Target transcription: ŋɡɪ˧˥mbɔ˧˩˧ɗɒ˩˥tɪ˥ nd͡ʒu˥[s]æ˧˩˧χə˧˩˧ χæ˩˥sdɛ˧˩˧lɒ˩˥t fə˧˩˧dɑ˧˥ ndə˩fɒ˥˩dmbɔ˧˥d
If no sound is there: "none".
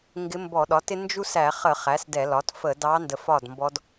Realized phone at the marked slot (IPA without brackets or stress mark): s